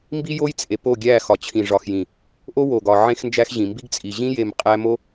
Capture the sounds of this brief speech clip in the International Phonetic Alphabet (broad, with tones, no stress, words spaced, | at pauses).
mbi˦jo˦jt͡sʼe˨ po˦˨ɡʲæ˦˨xɒ˨ t͡ɕʰĩ˨ʐɒ˨xjĩ˨ | ʔo˦ wo˨ɡɒ˨ ʕẽ˦xnd͡ʒæ˦xʑĩ˨ mbi˦ɡt͡sʼi˨ ʑĩ˦je˨m qʼæ˦mo˦